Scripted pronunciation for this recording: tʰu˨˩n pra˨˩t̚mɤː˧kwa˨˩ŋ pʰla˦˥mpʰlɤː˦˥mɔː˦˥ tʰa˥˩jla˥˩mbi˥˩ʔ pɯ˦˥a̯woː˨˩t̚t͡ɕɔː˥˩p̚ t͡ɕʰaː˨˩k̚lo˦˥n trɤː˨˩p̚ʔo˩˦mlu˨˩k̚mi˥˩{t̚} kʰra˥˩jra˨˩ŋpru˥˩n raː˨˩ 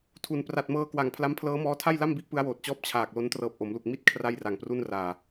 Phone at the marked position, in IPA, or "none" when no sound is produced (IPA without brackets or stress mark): t̚